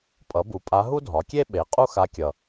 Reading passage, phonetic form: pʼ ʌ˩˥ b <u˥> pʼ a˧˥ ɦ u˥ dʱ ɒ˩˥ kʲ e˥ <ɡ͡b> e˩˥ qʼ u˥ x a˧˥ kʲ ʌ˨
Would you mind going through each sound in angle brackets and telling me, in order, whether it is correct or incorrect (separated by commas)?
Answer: incorrect, incorrect